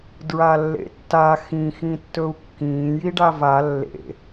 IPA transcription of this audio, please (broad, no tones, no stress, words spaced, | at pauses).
dɹalːḛtːa xĩ xĩtːɵu̯kːĩː jiɖava lːḛ